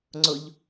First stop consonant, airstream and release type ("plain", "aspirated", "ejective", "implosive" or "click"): click